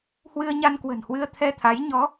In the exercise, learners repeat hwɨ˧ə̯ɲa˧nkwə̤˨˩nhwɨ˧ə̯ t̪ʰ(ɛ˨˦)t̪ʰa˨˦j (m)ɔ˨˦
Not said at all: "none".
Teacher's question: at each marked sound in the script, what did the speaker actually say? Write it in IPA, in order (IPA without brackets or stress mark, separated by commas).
ɛ˧, ɲ